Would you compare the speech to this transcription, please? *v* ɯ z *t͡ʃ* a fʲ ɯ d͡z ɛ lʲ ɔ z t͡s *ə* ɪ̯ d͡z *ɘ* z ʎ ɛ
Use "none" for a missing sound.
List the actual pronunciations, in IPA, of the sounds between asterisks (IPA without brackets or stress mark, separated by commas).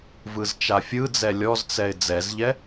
v, t͡ʃ, ɛ, ɛ